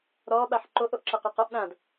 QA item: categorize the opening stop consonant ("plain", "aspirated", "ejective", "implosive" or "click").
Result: implosive